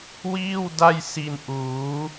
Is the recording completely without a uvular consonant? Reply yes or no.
yes